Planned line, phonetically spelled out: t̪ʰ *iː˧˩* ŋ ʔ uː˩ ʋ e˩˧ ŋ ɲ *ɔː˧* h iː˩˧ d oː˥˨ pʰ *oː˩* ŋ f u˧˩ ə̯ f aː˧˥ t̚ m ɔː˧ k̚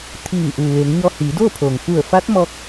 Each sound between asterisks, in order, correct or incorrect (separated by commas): correct, correct, correct